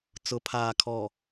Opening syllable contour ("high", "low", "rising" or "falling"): low